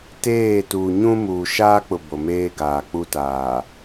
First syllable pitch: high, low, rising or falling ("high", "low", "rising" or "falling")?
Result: falling